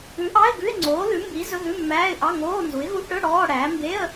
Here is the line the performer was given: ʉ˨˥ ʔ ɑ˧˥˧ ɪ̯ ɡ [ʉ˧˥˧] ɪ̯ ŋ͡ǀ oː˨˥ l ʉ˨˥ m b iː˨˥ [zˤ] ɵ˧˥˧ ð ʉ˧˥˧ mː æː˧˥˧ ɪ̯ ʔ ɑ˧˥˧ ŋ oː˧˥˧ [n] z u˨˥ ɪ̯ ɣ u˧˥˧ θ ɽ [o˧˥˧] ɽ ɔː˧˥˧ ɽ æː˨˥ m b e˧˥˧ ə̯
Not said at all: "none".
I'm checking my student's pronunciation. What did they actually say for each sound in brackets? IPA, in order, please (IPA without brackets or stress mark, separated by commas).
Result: ʉ˧˥˧, z, n, ɵ˧˥˧